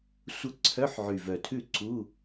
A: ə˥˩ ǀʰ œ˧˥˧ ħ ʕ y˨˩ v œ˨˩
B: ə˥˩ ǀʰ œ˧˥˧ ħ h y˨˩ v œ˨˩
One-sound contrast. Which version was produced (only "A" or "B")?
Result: A